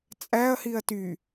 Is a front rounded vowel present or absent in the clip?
present